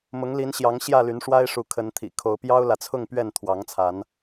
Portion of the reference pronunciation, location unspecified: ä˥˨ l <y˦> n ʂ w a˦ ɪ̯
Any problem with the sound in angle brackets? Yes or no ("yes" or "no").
yes